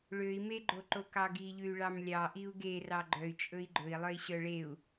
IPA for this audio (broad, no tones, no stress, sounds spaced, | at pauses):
ɭ ø i̯ m e ɡ͡ǃ o ǃ o k ɑ ɡ i ʎ ʉ y̯ ɭ ɑ m lʲ ɑ ʔ i u̯ ɡ e r ɑ ɡ͡ǃ œ y̯ t͡ʃʼ ɵ i̯ ɡ͡ǃ ɵ i̯ lˠ œ i̯ ɕ œ ɭ e u̯